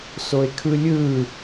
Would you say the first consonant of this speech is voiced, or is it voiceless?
voiceless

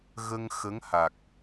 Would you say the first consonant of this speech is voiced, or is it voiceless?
voiced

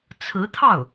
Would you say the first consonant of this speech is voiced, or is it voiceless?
voiceless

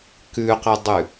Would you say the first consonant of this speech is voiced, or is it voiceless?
voiceless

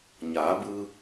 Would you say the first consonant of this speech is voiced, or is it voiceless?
voiced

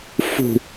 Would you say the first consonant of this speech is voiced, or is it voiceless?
voiceless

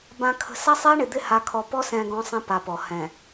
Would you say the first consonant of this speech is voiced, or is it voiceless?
voiced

